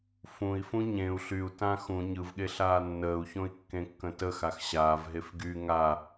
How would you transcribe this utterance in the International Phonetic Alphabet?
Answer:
fũi̯ fũɲẽu̯ ɬyu̯tã xũ ɲɯvɠeɬaː nːəːu̯çõi̯ kːẽkːə̃təxax ɕaːvɦef ɡy ŋa

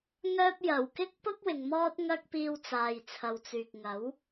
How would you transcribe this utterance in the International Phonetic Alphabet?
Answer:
ŋœː˥p̚ jɐ˨˩wkɪ˥k̚pʊ˥k̚ wɪ˨ŋmɔː˥t̚ŋɐ˥k̚piː˧w t͡saː˨jt͡sʰɐ˨wt͡syː˨k̚ ŋɐ˨˥w

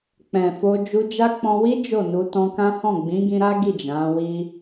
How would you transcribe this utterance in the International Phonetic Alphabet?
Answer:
k͡pɛ̃˨fo˧ d͡ʒu˧d͡ʒa˦ k͡pɔ̃˧ wi˦ d͡ʒo˦˨nu˧ tɔ̃˧kã˦hɔ̃˦˨ ɡ͡bĩ˨˦ɡĩ˧ɾa˦ ɡi˦˨d͡ʒã˨˦wi˦

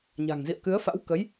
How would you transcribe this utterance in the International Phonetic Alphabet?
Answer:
ɲa̤˨˩ŋzḭ˧˨ə̯kɨ˨˦ə̯fa̰˧˥w kə˨˦j

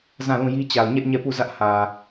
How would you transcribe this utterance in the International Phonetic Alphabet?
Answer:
zã˦˨lũ˦˨ji˦ t͡ɕa˨ʊ̯ɲɛ˦ʔ ɲɛ˦˨ pu˦˨ zä˦ʔ hä˨

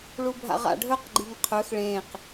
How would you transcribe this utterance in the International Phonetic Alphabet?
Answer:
ɭubʱa̰ʁa̰ɖʱɵq ɡ͡ǃiŋqʰɵx ɭẽq

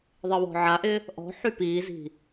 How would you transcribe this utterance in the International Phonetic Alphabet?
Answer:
ðˤɪwɔ̤ʕaʔɪ | ʔɔ̤ħy piːzi̤

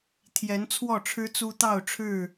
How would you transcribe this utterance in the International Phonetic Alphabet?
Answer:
t̪ʰjɛ˨˦nt͡sʰwɔ˥˨ʈ͡ʂʰɻ̩˦t͡su˦ t̪ɑ˥˨ʊ̯ʈ͡ʂʰɻ̩˥˨

